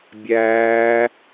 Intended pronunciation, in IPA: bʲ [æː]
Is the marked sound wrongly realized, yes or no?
no